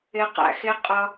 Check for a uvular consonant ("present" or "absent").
present